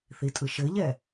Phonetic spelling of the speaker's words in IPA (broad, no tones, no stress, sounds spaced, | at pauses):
θ i tʼ ɯ ʃ ɘ ʎ ɛ